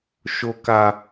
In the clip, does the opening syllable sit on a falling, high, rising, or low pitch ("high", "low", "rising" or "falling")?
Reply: high